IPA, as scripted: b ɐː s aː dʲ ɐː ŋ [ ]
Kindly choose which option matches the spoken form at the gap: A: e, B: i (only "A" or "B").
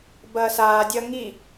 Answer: B